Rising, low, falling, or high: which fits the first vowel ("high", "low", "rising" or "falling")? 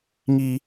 low